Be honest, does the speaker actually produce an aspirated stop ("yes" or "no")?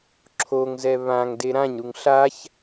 yes